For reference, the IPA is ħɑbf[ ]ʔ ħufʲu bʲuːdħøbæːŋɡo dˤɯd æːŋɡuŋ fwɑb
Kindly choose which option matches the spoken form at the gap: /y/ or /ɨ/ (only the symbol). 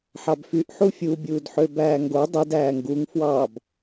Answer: y